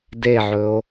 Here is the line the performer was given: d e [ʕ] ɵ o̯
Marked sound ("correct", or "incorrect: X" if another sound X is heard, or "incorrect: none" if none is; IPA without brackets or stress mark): correct